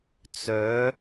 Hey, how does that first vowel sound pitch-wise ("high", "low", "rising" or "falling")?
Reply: rising